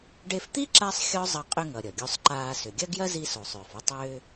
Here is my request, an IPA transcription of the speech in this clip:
ɖ e˧ f t̪ i˥ ǁ a˥ sˤ xʲ ɔ˥ zˤ ʌ˧ qʼ ʏ˧ ŋ ʌ˩ ɾʲ ʌ˩ ɡʲ o˧ sˤ ǃ aː˧ s ʏ˩ ɡʲ ɐ˥ ɡ j ɐ˥ z i˧ s o˩ sˤ ʏː˩ f o˧ tˤ ʏː˧

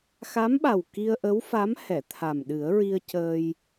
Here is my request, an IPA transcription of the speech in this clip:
x a˧˥ m ɓ a˨˩ w k i˧ ə̯ ʔ ə˧˥ w f a˧˥ m h ɛ˨˩˨ t̪ʰ a˨˩ m ɗ ɨ˨˩˦ ə̯ ɹ i˧ ə̯ c əː˧ j

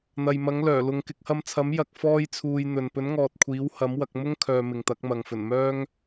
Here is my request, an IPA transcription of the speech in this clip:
n̪ ɐ˨ j m ɐ˨˥ ŋ l œː˨˩ l ʊ˨ ŋ k ɪ˧ k̚ h ɐ˧ m t͡sʰ ɐ˨˥ m j ɐ˧ k̚ f ɔː˥ j t͡sʰ uː˧ j n̪ ɵ˨ n p ɵ˨˥ n ŋ ɔː˨ t̚ kʷʰ iː˨˥ w h ɐ˨˥ m w ɐ˧ k̚ m ʊ˥ ŋ kʰ œː˨ m ɪ˨ ŋ t̪ ɐ˨˥ k̚ m ɐ˨ ŋ f ɵ˨˩ n m œː˥ ŋ

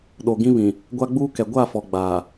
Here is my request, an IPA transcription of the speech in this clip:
ɗ o˨ ɡ ĩ˦ β ĩ˨ | ɡʷ a˦ ɡ͡b uː˦ k ɛ˨ ɡʷ a˦˨ f ɔ˨ ɡ͡b a˨

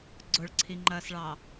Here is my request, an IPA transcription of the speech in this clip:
ɡ͡ǀ ʊ ɭ ǀʰ i ŋ͡ǃ ɐː s ɭ ɑ

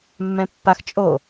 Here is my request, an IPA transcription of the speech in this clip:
mː ɛ̃ pː a x t͡ʃʼ o

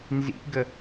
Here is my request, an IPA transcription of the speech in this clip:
n z ḭ ɡ ə

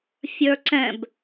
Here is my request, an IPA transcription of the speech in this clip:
fʲ ə˞ ǀ ɛ̃ b

